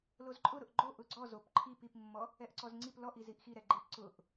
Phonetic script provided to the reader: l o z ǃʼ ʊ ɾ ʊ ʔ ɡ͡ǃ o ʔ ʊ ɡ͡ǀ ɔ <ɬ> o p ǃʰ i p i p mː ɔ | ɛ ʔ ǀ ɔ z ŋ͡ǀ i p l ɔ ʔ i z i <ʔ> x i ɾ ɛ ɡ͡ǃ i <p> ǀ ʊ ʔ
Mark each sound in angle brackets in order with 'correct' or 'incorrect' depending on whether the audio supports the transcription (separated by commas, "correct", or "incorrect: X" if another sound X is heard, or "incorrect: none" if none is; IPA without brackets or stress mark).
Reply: incorrect: z, correct, correct